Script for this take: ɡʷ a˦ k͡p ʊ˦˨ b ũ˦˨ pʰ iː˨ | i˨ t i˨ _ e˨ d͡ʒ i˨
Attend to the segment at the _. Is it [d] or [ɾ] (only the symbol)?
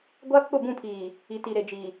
ɾ